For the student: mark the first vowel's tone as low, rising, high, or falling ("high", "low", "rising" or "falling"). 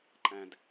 low